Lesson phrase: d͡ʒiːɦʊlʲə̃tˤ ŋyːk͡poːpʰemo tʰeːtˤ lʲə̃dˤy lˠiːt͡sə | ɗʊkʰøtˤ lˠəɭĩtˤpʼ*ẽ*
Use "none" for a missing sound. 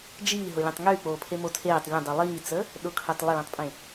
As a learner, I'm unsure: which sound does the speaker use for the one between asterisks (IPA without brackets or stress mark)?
ẽ